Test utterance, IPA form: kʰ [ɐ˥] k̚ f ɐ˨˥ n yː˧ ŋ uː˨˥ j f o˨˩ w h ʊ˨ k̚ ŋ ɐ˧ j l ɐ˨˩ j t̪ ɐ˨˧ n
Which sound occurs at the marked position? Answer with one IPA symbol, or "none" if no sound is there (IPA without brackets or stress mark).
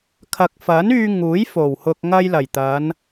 ɐ˨